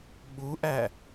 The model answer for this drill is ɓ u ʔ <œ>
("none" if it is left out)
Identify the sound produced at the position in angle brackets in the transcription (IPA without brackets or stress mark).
æ